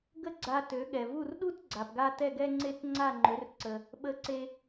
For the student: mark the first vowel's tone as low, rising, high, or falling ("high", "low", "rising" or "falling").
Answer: high